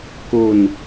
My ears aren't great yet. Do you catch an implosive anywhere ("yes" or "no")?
no